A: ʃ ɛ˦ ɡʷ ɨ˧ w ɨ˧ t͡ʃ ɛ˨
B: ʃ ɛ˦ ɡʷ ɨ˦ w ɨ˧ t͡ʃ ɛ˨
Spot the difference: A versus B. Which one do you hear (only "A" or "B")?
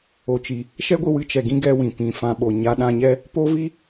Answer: A